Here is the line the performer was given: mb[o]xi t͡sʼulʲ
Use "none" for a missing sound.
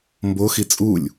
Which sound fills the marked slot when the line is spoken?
o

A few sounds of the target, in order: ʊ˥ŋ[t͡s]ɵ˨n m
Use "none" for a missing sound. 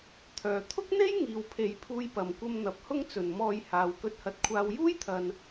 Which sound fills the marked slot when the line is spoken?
t͡s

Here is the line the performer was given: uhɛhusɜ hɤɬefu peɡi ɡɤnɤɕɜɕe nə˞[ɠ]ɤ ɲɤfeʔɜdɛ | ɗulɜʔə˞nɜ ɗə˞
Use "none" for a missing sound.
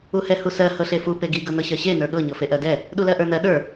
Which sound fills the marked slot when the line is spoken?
ɠ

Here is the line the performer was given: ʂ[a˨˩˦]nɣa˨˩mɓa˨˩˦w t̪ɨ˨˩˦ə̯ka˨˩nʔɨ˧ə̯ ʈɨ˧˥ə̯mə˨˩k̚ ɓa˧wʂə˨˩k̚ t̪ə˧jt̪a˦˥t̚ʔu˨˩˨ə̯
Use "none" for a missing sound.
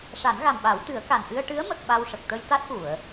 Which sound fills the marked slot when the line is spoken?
a˨˩˦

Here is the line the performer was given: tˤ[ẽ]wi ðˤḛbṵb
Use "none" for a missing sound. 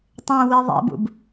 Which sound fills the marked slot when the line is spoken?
ẽ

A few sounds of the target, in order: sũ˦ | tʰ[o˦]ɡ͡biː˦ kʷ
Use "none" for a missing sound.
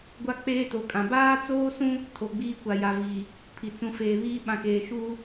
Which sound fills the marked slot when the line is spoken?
o˨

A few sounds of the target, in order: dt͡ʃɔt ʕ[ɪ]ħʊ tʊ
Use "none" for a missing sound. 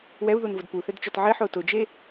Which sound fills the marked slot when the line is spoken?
ɪ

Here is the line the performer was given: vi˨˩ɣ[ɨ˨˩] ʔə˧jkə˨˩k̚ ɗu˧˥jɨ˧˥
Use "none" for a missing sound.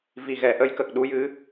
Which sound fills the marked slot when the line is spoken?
ɛ˨˩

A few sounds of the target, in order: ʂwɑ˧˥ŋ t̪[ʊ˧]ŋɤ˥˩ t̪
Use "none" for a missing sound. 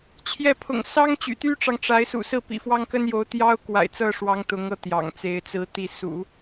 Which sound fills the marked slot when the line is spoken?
ʊ˧˥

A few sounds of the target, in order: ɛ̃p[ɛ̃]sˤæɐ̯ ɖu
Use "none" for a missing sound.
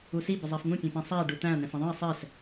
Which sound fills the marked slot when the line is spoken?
æ̃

